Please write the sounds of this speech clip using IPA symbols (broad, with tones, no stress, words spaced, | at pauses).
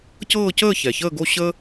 cɤː˥˧cəː˥˧ çɛ˨˩çəː˥˧ɡo˥˧ ɕə˥